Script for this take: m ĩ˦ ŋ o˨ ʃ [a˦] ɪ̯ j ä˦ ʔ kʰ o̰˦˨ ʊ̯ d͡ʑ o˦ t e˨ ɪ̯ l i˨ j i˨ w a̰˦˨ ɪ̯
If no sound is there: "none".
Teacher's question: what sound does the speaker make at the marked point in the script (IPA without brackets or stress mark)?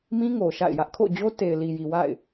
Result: a̰˦˨